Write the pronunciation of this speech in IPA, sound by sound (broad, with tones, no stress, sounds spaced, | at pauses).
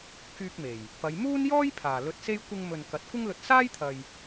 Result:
k yː˧ k̚ m e˨˩ j | p ɐ˨˧ j m uː˥ n j ɔː˥ j pʰ aː˨˩ l ɵ˧ t̚ s e˥ j kʷ ɪ˧ ŋ m ɵ˨ n k ɐ˨˥ t̚ kʷ ɪ˥ ŋ l ɵ˧ t̚ s aː˥ j t̪ʰ ɐ˨ j